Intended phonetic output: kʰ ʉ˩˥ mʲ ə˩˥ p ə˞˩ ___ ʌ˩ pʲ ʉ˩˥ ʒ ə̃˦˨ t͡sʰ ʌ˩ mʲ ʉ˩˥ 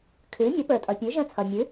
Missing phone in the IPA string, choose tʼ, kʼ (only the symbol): tʼ